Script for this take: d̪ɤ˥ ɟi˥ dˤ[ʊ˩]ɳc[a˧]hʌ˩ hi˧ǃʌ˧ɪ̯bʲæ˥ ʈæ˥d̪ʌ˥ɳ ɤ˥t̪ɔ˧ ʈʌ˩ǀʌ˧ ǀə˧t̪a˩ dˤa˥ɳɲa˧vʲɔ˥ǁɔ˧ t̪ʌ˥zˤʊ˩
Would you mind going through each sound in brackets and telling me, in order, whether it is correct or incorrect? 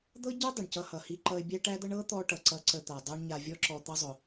correct, incorrect: ʌ˧

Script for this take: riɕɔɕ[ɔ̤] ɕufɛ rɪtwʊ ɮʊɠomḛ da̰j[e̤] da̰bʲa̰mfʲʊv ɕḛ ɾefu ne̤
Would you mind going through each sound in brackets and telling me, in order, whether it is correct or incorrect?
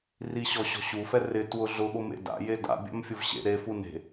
correct, incorrect: e

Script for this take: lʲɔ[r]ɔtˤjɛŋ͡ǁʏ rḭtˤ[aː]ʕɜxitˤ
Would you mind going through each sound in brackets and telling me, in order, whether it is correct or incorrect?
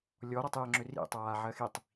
incorrect: ɾ, correct

